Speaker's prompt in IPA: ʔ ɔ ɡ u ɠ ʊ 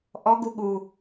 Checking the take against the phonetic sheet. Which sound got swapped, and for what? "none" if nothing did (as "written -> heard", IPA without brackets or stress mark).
ʊ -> u